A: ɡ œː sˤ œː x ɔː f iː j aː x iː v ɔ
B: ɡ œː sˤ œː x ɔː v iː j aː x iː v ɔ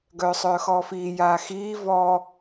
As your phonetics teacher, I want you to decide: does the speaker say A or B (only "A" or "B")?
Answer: A